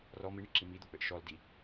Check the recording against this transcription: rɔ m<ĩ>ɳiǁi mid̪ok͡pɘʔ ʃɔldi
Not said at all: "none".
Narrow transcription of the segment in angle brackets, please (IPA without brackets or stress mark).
i